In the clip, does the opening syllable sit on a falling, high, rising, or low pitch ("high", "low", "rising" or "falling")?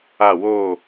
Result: falling